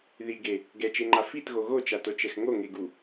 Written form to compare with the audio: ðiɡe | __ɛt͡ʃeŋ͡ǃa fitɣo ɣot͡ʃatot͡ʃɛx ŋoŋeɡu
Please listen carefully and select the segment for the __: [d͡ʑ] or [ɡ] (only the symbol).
ɡ